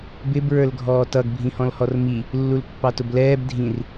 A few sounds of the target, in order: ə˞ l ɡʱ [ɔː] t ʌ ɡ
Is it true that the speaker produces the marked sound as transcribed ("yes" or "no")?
yes